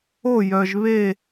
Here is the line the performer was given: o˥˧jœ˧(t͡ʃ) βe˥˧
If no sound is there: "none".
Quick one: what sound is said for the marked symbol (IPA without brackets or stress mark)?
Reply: ʒ